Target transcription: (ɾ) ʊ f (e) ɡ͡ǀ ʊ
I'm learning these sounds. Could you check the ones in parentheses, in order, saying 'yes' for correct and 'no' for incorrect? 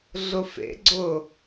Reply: no, no

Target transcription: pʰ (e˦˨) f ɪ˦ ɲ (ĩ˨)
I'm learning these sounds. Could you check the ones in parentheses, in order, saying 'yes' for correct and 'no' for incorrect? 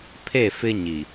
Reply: yes, no

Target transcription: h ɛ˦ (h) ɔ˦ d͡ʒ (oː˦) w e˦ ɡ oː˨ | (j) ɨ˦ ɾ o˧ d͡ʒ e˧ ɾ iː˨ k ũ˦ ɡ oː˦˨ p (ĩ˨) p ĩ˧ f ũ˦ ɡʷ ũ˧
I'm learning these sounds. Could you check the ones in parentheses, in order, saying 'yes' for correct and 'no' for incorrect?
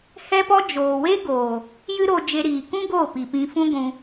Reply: no, no, yes, no

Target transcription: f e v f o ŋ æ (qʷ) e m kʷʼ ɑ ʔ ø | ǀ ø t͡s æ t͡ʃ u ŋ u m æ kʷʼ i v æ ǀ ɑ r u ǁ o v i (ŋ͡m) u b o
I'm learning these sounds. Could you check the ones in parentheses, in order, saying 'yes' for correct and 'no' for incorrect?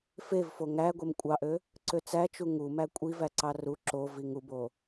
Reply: no, no

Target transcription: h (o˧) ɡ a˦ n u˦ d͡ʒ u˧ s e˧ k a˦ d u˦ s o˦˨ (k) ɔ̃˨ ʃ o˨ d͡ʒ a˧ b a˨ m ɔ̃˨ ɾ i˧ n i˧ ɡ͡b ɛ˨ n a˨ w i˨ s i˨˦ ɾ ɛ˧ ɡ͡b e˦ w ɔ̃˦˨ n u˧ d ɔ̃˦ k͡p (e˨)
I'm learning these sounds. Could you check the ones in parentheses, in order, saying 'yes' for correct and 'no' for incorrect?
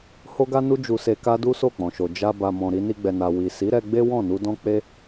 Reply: no, no, no

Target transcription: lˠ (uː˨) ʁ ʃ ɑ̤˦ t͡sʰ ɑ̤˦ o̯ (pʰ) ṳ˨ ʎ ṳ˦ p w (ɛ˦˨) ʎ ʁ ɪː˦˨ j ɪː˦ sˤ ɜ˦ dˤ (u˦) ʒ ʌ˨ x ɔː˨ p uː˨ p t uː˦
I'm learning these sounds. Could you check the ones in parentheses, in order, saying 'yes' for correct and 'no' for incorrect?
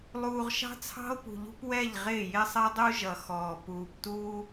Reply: yes, no, yes, yes

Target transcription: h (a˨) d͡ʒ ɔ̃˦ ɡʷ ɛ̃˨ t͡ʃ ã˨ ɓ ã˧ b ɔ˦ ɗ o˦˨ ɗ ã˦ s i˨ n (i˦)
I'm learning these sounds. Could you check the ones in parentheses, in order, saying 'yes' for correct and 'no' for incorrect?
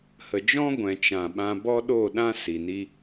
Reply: no, yes

